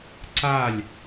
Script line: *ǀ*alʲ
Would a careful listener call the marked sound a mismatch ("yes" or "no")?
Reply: no